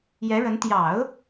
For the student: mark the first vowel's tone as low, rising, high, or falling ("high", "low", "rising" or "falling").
rising